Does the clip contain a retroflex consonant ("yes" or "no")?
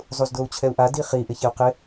no